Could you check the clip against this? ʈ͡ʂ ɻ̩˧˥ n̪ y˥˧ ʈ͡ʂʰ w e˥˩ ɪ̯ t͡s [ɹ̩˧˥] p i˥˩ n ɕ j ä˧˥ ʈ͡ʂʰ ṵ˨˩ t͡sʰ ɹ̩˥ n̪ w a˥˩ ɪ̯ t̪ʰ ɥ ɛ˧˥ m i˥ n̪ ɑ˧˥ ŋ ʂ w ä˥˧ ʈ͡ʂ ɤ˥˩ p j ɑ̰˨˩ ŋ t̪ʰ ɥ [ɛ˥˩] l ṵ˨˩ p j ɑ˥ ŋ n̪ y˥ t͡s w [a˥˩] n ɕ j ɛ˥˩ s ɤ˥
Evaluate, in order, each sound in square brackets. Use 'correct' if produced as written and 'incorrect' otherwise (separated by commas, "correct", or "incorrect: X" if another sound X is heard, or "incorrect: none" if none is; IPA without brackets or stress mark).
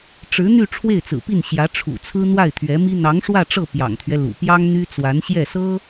incorrect: ɹ̩˨˩, incorrect: ɛ˦, incorrect: a˧˥